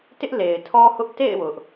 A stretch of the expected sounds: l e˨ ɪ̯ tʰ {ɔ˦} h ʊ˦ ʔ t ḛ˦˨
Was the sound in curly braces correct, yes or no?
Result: yes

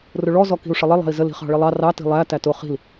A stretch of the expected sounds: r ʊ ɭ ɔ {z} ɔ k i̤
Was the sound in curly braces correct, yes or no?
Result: yes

